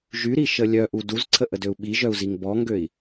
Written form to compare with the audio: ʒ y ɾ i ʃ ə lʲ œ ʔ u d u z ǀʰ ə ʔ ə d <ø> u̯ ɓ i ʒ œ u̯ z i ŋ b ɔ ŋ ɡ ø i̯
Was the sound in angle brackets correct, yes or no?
yes